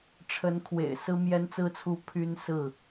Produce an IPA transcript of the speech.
ʈ͡ʂʰə˨˦nkʰwḛ˨˩ɪ̯ sɹ̩˦mjɛ˦nt͡sɹ̩˦t͡sʰu˦ pʰy˦nsɹ̩˥˨

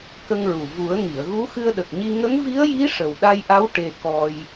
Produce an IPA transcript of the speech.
kə˧ŋɹu˨˩ vu˨˩˦ə̯ŋi˨˩˨ə̯ɣu˧˥ xɨ˧ə̯ɗə˨˩k̚ɲi˧ ŋə˧˥ŋvi˧˥ə̯ji˧˥ ʂə˨˩wɗa˧jʔa˧˥w ʈe˧ kɔ˧j

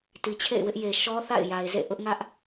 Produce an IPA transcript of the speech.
ti˨t͡ɕʰḛ˦˨ɪ̯ wɪ˦ʔje˨ ʃɔ˦θa̰˦˨ɪ̯ ja˨ɪ̯zḛ˦˨ ʔʊ˦ʔŋä˦ʔ

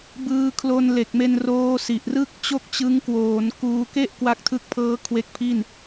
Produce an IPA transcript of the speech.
bɯː˧kʰlo˧nle˨˩k̚me˧n roː˦˥si˨˩ʔrɯ˥˩k̚ t͡ɕo˥˩k̚t͡ɕɯ˦˥ŋ kwoː˩˦nkuː˧ ke˥˩ʔ kwa˦˥k̚tʰɯ˦˥k̚pʰɤː˦˥ kʰwe˦˥k̚pʰi˥˩n

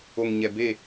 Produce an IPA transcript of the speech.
o˨ŋɲɛ˨beː˦˨

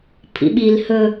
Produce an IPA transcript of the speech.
pʰḭɓil hɵ

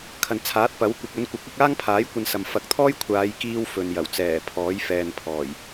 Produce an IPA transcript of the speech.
kʰɐ˨nt͡sʰaː˨˥t̚pɐ˨˥w kʷɪ˨k̚ ɵ˨˧n kʷɐ˨˥k̚ɐ˨˥k̚aː˥ŋpʰaː˨˥j kʷɐ˧n sɐ˨m fɐ˨˥k̚t̪ʰɔː˥jkʷʰaː˨˧j kiː˥wfɵ˨n jɐ˨˩wt͡sɛː˨˩ pʰɔː˨˥jfɛː˨npʰɔː˨˩j

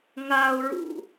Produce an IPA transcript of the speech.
ŋaʊ̯ɹṵ

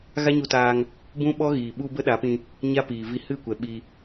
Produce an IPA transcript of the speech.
ɣa˦ɲu˧taː˧ŋ | bũ˦ɓɔ˦ɣiː˨ ɓu˧ bə˦ɗa˨˦pĩ˧ | ɲa˦piː˨vi˧ hɨ˦˨kʷɛ˨ ɓi˧

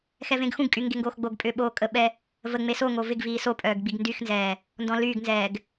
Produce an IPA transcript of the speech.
xɛvẽɡxũɡkʼy ŋɡeŋɡoːxɡ͡boɡpʼʏː ɓoːkʼəɓɛ | vəŋ͡me soŋo vɪɡviː sopʼœːɡ ɡ͡biɡndyxnzɛː | ndɔ̃lyːɡnzɛːɡ

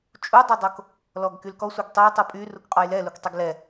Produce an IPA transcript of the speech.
t͡ʃʼudˤodˤok | lɔɡkylkɔ sʷœɡtˤøj tˤupʼy rukqʼɔjlɛluk tˤuɡlɛ

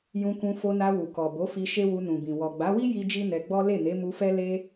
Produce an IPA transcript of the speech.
jũ˧kũ˧ fo˧na˧ wu˨kɔ˨bo˨˦fi˧ ʃe˦wu˧nũ˨bĩ˨ wɔ˨ɡ͡ba˨˦wi˦ ji˦d͡ʒi˦nɛ˧ɡ͡bɔ˦ le˦˨ne˨˦mu˧fɛ˦ le˦

